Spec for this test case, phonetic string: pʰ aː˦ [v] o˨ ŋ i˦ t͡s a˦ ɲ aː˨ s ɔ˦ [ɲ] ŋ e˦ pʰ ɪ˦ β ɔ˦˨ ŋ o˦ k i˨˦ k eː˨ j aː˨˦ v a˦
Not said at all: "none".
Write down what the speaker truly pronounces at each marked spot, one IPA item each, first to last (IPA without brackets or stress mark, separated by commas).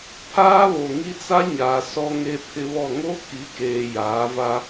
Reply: β, none